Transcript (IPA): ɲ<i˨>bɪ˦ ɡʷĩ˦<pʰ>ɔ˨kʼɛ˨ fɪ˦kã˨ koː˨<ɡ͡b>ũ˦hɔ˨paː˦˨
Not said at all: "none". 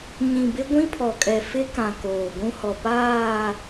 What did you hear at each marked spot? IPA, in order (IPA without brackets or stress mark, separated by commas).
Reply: ĩ˨, pʰ, ɡʷ